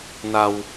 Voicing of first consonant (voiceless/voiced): voiced